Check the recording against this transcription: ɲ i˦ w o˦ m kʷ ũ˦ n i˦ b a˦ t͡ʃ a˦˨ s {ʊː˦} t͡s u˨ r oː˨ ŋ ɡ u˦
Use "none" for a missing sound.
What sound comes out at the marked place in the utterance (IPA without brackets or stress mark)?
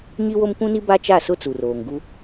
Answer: ʊ˦